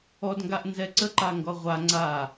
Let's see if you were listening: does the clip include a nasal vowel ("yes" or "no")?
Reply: no